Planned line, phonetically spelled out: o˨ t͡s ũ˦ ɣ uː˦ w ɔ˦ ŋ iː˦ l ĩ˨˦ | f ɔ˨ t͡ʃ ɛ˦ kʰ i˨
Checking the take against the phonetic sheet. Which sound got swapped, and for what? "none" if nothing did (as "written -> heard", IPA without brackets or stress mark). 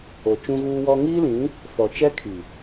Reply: t͡s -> t͡ʃ